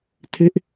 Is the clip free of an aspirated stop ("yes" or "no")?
no